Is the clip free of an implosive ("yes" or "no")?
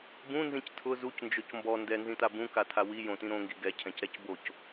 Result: yes